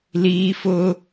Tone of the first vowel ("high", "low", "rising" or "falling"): high